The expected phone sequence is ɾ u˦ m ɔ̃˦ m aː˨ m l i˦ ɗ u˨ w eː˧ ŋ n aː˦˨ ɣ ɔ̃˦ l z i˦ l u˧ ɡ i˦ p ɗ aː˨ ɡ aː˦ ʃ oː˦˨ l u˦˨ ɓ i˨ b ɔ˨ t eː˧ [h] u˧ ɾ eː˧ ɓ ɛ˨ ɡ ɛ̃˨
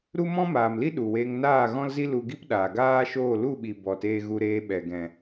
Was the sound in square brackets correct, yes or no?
no